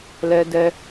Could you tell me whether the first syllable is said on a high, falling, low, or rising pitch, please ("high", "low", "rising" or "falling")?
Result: high